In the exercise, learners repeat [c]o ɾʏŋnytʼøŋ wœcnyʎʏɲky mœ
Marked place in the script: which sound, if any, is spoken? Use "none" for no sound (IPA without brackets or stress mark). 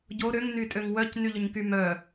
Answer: ɟ